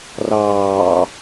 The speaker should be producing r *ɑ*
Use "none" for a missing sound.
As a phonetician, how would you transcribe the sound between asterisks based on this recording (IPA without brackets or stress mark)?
ɑː